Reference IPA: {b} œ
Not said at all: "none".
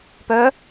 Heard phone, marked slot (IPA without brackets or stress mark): p